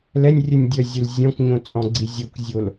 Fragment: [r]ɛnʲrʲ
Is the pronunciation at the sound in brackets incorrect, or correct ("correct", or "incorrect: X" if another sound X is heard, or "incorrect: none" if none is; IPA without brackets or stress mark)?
incorrect: l